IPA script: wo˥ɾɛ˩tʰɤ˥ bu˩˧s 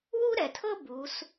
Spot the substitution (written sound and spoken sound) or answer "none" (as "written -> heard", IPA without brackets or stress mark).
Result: o˥ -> u˥